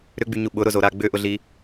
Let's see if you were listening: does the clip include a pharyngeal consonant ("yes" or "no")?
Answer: no